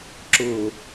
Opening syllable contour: low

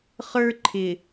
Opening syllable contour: high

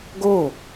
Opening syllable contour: falling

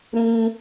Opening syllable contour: high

